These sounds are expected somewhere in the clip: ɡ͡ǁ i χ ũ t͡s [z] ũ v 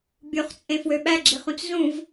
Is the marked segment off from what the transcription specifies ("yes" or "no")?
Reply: no